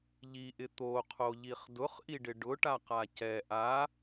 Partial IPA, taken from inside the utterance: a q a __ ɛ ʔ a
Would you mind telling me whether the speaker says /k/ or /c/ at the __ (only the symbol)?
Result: c